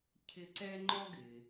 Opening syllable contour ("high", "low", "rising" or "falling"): high